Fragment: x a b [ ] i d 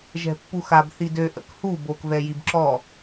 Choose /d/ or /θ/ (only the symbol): θ